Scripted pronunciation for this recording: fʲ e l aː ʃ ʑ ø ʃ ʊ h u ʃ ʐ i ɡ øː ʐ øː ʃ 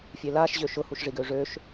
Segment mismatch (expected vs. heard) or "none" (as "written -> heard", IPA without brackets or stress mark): none